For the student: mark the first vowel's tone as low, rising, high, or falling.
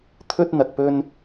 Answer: high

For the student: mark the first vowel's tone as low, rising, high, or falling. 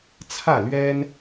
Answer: falling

